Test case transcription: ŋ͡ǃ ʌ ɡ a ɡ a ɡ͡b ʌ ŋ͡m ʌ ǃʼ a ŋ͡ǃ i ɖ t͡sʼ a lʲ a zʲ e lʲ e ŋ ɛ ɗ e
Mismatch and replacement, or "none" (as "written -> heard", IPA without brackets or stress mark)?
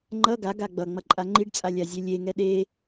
none